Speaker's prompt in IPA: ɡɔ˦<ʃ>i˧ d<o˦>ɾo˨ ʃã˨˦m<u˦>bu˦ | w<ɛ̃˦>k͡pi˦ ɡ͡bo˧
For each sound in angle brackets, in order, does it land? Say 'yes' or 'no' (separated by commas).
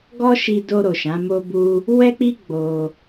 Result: yes, no, no, no